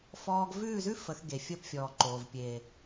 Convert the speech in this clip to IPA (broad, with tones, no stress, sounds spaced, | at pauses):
f ɔː˦ ɡ v ʉː˦˨ z ʉ˦ f ə˨˦ x ɡ e˨ fʲ əː˧ p fʲ ɔː˨ ǃ oː˨ v pʲ eː˨